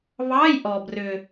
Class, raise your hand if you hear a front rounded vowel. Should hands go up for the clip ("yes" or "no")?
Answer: yes